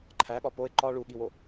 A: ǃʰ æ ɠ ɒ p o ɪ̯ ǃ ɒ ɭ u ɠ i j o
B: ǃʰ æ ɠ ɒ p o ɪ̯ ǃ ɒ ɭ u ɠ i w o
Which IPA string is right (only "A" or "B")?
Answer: B